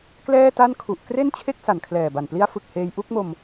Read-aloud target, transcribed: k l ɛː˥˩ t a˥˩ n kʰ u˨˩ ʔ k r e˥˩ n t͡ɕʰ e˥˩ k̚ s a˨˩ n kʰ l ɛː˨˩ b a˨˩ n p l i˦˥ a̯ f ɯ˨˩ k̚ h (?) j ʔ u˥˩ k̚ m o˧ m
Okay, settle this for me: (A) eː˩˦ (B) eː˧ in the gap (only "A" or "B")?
B